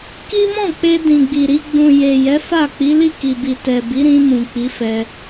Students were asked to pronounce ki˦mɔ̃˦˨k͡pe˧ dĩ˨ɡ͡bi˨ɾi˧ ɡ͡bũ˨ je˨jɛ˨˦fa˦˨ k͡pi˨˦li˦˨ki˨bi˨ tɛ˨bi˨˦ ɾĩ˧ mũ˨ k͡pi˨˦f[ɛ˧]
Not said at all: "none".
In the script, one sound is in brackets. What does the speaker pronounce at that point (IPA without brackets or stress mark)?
ɛ˧